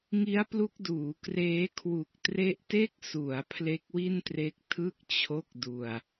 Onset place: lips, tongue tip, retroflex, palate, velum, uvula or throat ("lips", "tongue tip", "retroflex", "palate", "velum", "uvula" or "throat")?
velum